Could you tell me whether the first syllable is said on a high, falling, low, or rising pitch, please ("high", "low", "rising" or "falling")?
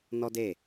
high